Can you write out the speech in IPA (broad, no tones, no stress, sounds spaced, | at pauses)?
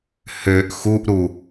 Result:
h ø ʔ x u ʔ ɾ u